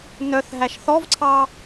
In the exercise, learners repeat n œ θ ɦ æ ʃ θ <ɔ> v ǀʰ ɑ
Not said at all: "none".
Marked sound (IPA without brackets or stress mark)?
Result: ɔ